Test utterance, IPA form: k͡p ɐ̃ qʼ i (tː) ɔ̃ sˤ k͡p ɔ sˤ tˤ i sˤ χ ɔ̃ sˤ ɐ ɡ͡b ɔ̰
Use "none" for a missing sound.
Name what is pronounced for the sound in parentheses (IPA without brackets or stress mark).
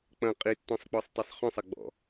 tː